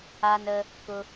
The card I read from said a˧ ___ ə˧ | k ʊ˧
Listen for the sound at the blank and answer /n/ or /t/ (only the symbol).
n